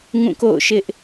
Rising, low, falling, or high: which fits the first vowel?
falling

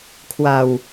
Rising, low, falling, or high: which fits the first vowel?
low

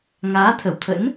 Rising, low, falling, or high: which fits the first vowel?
rising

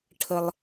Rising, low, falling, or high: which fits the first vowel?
low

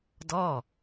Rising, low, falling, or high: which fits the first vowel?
falling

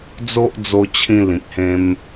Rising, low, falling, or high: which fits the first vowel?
high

